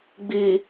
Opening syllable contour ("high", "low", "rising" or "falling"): low